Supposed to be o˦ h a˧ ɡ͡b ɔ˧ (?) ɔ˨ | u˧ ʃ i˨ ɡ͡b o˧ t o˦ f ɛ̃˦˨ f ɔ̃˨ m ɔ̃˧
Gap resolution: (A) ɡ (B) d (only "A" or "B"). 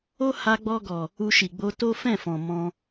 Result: A